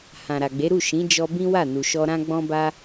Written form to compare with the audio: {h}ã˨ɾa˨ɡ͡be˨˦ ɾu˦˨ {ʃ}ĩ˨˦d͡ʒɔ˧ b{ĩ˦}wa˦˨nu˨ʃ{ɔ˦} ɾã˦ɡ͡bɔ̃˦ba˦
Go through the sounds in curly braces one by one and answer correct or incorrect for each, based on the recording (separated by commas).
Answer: correct, correct, correct, incorrect